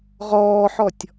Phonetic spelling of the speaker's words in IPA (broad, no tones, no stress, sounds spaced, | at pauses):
ʁ ɔː ħ ɔ tʲ